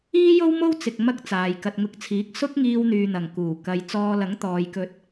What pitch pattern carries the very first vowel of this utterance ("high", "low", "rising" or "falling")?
high